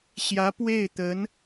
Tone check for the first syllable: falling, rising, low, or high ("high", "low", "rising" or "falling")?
rising